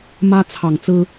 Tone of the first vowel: high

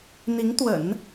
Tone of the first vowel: rising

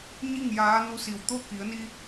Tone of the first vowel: falling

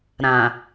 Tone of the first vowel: low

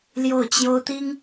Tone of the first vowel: falling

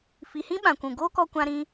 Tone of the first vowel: low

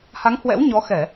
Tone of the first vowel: rising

